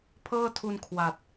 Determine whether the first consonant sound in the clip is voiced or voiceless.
voiceless